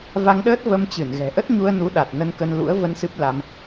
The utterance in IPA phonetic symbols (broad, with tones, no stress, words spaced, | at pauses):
va˧ŋɗəː˦˥t̚ və˧mt͡ɕɨ˧˩n ɣɛ̤˨˩ʔə˦˥t̚ɲu˧ə̯nu˨˦ ɗa˨˩t̚ nə˧nkə˧nlṵ˧˥ə̯ və˧n sɨ˦˥p̚la˧m